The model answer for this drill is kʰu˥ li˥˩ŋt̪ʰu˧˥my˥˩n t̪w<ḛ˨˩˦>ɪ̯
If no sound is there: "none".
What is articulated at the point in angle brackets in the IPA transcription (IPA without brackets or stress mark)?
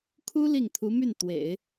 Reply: ḛ˨˩˦